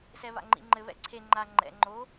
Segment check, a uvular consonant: absent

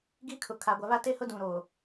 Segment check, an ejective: absent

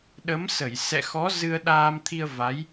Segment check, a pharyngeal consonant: absent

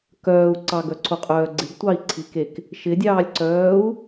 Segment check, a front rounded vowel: present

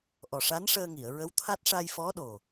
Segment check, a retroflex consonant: present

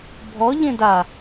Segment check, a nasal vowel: present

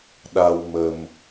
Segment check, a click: absent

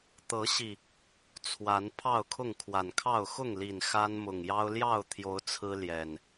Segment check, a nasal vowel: absent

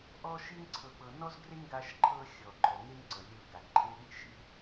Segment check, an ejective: absent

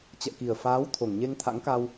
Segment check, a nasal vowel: absent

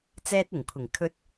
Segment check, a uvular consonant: absent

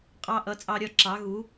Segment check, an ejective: present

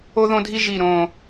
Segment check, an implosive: absent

